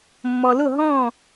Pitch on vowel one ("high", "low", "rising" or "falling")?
low